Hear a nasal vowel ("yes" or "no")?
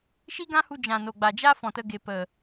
yes